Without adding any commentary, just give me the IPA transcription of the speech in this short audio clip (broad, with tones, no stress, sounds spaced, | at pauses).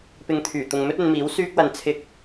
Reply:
p ɪ˧ ŋ t̪ʰ yː˨˩ t̪ ʊ˨ ŋ m ɵ˥ t̚ ɵ˨˧ n m iː˨˥ w s yː˥ k̚ w ɐ˧ n t͡sʰ ɪ˧ k̚